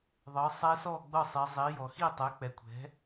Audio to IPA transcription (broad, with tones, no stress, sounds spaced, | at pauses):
ðˤ ɤ˩˧ sˤ ɛ˧˥ s ɔ˥˨ ɡ͡b ɤ˥˨ sˤ i˩˧ zˤ i˩˧ j ɔ˩ x i˥˨ tˤ ɛ˩˥ k͡p ɛ˩˧ kʷʰ ɛ̤˩˥